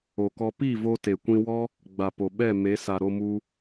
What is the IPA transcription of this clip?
o˨ k ɔ˧ p i˦˨ v o˧ t e˨ kʷ ĩ˧ w ɔ˦ | ɡ͡b a˨ p o˨ ɓ ɛ˦˨ m e˨˦ s a˨ ɾ o˧ m u˧

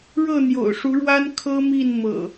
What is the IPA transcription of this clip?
ɻ ɤ˥˨ n̪ j o̰˨˩ ʊ̯ ʂ u˨˦ ɻ w a˦ n kʰ ɤ˦ m i˥˨ n m ɤ̰˨˩

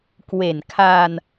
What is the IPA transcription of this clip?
k w e˨˩ n kʰ a˧ n

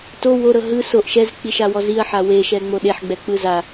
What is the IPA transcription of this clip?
t o w o ɾ ɤ ɦ ɯ s o ʔ ʃ ɛ z k͡p i ʃ a w ɔ z i ɐ̯ ħ a w e ʃ ɛ ŋ͡m o ɗ e ħ ɡ͡b ɛ k͡p ɯ z a

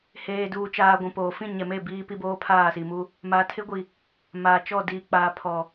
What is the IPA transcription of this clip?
h eː˨ d uː˨ t͡ʃ aː˨ ɡʷ ũ˨ p oː˨ f ĩ˦˨ ɲ ɛ˨ m e˦˨ b iː˦ p i˦ b oː˦ pʰ aː˦˨ s i˨ m u˦ | m a˨ tʰ ɪ˦ ɡʷ i˨ | m aː˨ t͡ʃ ɔ˦˨ d iː˨ k͡p aː˨ pʰ ɔ˨

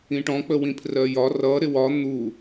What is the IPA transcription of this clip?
ĩ ʈ ɔ̃ k͡p ə w ĩ pʰ r ɜ j ɒ r ʌ ɾ ɪ w ɒ n̪ u

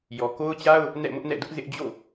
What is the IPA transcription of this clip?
j ɔ˨ k o˦ ʊ̯ t͡ɕ a˦ ʊ̯ | n ɛ̰˦˨ m ʊ˦ ʔ n ɛ̰˦˨ d ʊ˦ ʔ z ɪ˦ ʔ d͡ʑ o̰˦˨

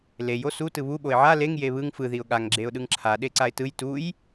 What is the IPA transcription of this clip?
l e j o s u t ɯ β u ɓ o ɪ̯ ʕ a l e ŋ j e β ɯ ŋ f ɯ ð i ʊ̯ ɠ a ŋ ɡ͡ǁ e ʊ̯ ɗ ɯ ŋ ǁʰ a ɗ e ǀ a ɪ̯ t ɯ j t u j

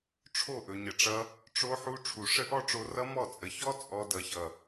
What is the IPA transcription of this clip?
ʈ͡ʂʰ o˦˨ ʔ ɵ˨ ɲ ə˨ ʈ͡ʂ ʌ˧ | ʈ͡ʂ o˧ ħ u˧ ʈ͡ʂʰ u˨ ʂ ə˦ ʔ ɔ˦ ʈ͡ʂ o˧ r ʌ˦ m ɔ˦˨ t͡sʼ ə˨ ç ɔ˦ t͡sʼ ɔ˧ d ʌ˨ ç ʌ˨

